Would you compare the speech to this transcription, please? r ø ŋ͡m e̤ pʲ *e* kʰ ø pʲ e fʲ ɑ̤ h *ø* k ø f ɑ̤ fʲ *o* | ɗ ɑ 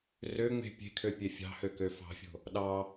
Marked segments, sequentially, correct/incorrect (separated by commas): incorrect, correct, incorrect